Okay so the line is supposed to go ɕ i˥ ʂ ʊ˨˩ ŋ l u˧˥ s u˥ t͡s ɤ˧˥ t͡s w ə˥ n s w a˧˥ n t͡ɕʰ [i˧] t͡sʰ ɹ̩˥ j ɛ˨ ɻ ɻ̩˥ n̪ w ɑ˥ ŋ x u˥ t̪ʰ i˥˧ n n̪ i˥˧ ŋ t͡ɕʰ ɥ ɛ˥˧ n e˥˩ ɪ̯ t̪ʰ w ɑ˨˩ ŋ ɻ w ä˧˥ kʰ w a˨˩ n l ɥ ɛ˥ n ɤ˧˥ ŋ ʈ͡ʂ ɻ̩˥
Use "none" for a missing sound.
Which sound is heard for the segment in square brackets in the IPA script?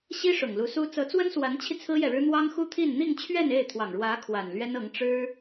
i˧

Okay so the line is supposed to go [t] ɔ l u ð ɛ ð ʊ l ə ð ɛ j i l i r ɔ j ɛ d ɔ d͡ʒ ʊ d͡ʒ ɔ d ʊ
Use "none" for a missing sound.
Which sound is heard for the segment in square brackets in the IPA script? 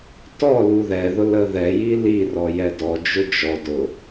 t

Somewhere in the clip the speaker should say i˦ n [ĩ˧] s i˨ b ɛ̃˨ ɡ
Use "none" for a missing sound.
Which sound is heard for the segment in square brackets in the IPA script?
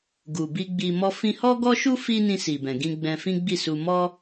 ĩ˧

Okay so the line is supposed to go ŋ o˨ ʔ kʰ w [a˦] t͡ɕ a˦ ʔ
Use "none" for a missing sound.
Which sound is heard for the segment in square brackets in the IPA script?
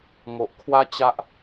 a˦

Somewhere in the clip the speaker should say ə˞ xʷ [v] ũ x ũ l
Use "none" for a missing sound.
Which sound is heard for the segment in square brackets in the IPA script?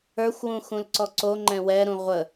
w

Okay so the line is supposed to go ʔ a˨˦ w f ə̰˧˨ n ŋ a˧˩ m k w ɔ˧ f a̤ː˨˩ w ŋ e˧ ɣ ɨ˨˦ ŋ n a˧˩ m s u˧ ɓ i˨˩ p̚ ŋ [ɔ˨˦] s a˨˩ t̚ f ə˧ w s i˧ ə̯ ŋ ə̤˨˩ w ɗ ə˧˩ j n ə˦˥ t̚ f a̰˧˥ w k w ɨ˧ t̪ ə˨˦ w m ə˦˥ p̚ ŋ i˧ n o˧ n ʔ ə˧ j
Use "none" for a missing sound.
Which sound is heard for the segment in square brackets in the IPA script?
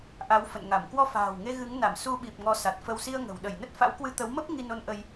ɔ˨˦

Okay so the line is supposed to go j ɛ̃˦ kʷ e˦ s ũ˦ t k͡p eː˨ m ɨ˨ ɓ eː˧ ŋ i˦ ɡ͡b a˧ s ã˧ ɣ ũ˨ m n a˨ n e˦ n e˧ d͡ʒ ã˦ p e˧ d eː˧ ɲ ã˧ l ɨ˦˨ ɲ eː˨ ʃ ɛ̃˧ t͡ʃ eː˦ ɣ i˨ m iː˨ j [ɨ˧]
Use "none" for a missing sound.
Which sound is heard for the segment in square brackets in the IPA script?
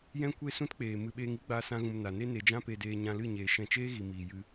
ɨ˧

